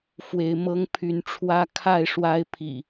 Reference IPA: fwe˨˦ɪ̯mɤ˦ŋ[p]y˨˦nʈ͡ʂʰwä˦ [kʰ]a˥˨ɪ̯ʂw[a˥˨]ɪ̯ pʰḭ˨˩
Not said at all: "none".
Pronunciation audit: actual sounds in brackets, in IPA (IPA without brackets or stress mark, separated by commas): pʰ, kʰ, a˦